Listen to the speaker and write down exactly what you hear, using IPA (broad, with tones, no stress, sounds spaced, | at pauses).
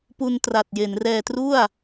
p u˧ n t r a˨˩ t̚ j e˩˦ n r ɛː˧ t r u˥˩ a̯